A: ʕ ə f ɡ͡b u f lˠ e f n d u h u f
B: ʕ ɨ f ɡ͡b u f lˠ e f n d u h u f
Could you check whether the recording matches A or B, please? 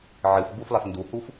B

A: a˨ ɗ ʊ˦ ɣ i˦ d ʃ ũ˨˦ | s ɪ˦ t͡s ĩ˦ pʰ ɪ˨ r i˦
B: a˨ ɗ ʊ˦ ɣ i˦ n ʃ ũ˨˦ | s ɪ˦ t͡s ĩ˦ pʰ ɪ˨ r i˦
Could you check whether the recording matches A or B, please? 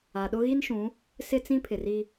B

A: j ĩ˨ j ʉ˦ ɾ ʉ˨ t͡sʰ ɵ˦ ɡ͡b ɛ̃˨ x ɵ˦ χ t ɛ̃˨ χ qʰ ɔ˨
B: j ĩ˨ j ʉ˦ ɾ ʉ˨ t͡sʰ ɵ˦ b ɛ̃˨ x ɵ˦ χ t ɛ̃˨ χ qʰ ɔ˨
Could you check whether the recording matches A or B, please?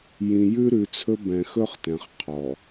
B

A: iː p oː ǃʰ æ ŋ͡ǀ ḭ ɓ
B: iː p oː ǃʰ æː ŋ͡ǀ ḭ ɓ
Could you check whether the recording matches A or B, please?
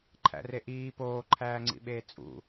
B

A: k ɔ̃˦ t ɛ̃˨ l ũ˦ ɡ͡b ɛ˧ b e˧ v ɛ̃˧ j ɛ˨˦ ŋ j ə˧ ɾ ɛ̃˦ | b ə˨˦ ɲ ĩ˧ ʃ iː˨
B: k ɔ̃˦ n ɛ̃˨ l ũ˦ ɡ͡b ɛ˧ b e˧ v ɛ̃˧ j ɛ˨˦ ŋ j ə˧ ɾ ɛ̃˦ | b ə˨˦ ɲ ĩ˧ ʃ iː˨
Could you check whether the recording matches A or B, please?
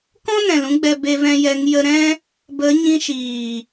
B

